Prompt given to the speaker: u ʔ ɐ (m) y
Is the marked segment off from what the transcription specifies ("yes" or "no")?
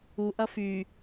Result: yes